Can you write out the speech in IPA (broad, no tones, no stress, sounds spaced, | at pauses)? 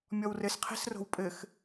mʲ ɔ w r ɘ s qʰ ɛ̤ s r o̤ w pʼ ɘ x